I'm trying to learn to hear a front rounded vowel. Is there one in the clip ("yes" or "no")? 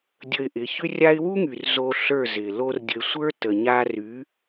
yes